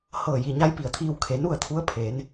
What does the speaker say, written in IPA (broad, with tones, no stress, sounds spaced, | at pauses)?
h ɤː˧˩ j i˩ ɲ a˧˥ j p i˧˩ ə̯ t̪ʰ iː˧ w kʰ e˩˧ n u˥˨ ə̯ t̪ʰ u˧˥ ə̯ pʰ eː˩˧ n